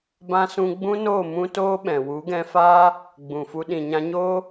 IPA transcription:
b ã˦ s ũ˦ ɡ͡b ũ˦ n oː˦˨ m ũ˦ t oː˦ ɓ ɛ̃˨ w u˨˦ ɡ ɛ̃˧ f aː˦ | ɡ͡b ũ˨ f u˧ ɗ ĩ˨ ɲ ã˧ ɲ oː˦

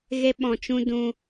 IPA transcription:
ɣ e˦ ɓ ɔ̃˨ t͡ʃ ũ˦ d ũ˧

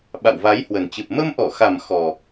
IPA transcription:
ɓ a̰˧˨ w v a˨˦ j h w ə˨˩ n t͡ɕ ɨ˨˩ p̚ m ə˧ m ʔ ɔ˧˩ x a˨˩ m x ɔ˨˩

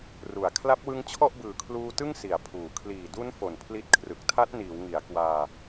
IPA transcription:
r u˨˩ a̯ kʰ l a˦˥ p̚ w ɯ˦˥ ŋ t͡ɕʰ ɔ˥˩ ʔ b ɯː˨˩ kʰ l uː˧ t ɯ˥˩ ŋ s i˨˩ a̯ pʰ uː˨˩ kʰ l iː˨˩ d u˦˥ n f o˨˩ n pʰ l i˦˥ t̚ kʰ r ɯ˨˩ k̚ tʰ a˦˥ t̚ n iː˩˦ w ŋ i˩˦ a̯ k w aː˧

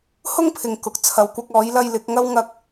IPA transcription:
h ʊ˥ ŋ pʰ ɪ˨ ŋ k ʊ˨ k̚ t͡sʰ ɐ˨˧ w kʷ ɐ˧ k̚ ɔː˨˥ j l ɐ˧ j l ɪ˨˥ k̚ ŋ ɐ˥ w ŋ ɐ˧ k̚

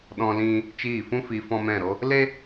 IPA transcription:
ɗ ɔ̃˧ l ĩ˧ | t͡ʃ iː˦˨ f ũ˦ f i˧ f ɔ̃˦ m ɛ̃˦˨ ɾ o˦ | l e˦

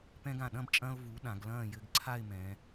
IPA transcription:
p ɛ̃˧ ɡ ã˧˩ ɗ ɐ̃˥˧ b t͡ʃʼ ɐ̃ː˧ ʊ̯ v u˩˧ ɗ ã˩˧ ɡ l ɐ̃ː˥˧ j ɘ˧ ɡ ǀʰ a˥˧ ɪ̯ m ɛ̃˩˧

